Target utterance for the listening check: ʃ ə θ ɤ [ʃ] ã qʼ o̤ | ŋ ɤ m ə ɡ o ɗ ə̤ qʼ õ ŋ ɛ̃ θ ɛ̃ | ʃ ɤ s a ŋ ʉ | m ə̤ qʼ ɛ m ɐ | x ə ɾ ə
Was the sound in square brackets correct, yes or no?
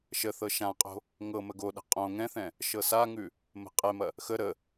yes